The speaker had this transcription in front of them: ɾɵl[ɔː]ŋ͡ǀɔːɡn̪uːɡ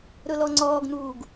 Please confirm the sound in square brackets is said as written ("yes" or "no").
no